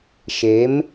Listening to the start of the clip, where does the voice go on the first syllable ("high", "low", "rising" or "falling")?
rising